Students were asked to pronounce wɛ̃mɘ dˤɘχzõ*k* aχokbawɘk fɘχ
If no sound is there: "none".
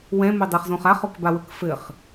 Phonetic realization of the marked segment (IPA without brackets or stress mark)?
χ